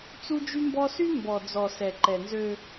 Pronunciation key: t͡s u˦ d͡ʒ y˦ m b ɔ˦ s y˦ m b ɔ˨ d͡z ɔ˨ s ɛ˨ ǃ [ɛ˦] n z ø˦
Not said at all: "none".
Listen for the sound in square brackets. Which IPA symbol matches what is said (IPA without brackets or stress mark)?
ɛ˨